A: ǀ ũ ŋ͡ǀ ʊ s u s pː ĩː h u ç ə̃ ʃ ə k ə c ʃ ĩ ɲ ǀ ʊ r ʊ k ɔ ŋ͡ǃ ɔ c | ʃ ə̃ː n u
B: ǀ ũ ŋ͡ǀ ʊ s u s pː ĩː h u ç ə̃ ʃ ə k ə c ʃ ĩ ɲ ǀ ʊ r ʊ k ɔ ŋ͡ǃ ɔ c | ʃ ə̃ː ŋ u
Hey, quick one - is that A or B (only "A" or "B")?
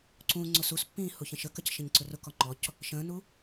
A